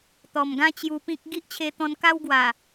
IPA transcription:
t̪ ɔ˨˩ m ɡ ã˦ t͡ɕ j u˧ p ĩ˦ k̚ ɡ i˦ ʔ t͡ɕʰ e˧ t̪ ɔ̃˧ n k a˦ w ɡ w a˨˩

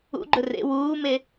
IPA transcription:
ṵ ɡ͡ǃ ɵ r ḛ w uː m e

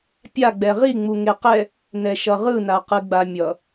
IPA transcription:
pʲ a ɡ͡b ɛ ʁ i ŋ͡m u ŋ e q ɛ | n ɛ ʃ ʌ ʁ ɯ n a q ɯ ɡ͡b a mʲ ʌ

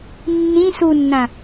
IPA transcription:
nː ĩ s u nː ã

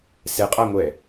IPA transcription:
s ɛ qʼ a ŋʷ ɛ

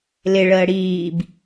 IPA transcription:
l ɪ ɭ əː ɽ iː b

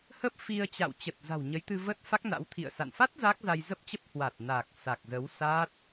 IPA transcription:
h ə˦˥ p̚ f i˧ ə̯ t͡ɕ a̰˧˨ w t͡ɕ ə˨˩ t̚ z a̤˨˩ w ɲ ə˨˦ j t̪ ɨ˧ v ə˦˥ t̚ f a˦˥ k̚ n a̰˧˥ w t̪ʰ ḭ˧˨ ə̯ s a̰˧˨ n f a˦˥ t̚ z a˦˥ k̚ z a˧ j z ə˦˥ p̚ t͡ɕ ə˦˥ p̚ h w a˨˩ t̚ n a˨˩ k̚ s a˨˩ k̚ z ə˨˦ w s a˦˥ t̚

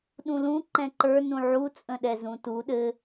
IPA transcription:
ɗ ũ l ũ ǃ ɛ̃ ǃ ə˞ n ũ ʕ u t͡sʼ ə̃ ɗ ɛ z ũ t u ɗ ɘ

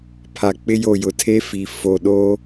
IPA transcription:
pʰ a˨ k͡p ɪ˦ j o˦˨ j ʊ˨ tʰ e˦ f i˨ f o˨ ɗ o˦

